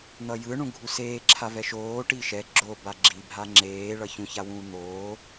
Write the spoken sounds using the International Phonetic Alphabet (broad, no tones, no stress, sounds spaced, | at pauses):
n̪ ʌ j ɯ ɳ ũ ɡʱ u s eː ǁʰ a v ɛ ʃ oː ʈ i ʃ ɛ ɡ͡ǁ o b a ɡ͡ǁ i bʱ a ŋ͡ǁ eː ɭ ʌ ç ũ ç a w ũː n̪ oː